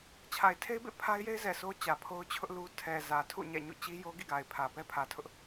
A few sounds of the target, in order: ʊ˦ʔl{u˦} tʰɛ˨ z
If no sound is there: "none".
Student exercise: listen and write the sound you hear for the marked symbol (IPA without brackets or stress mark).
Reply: u˦